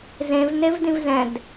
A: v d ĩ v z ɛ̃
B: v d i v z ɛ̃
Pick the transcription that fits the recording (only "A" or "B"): A